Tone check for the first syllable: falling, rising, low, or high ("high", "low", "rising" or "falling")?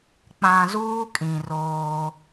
low